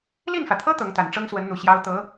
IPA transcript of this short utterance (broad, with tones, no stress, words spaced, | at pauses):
li˥˩nfä˩t̪ʰɤ˥ t̪ɤ˧˥ŋt̪a˨˩n ʈ͡ʂɤ˥ŋswə˧˥nn̪u˨˩ ɕjɑ˥ʊ̯ t̪ɤ˧˥